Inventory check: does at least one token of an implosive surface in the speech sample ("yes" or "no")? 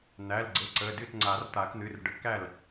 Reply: no